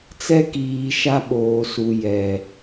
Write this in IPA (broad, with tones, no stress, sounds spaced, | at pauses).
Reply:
t͡s ɛ˦ k iː˨ ʃ a˦ ɓ oː˨ s u˨ j ɛ˨